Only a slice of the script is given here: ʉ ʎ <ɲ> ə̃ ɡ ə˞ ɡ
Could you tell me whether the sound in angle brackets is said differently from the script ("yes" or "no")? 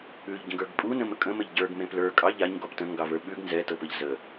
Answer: yes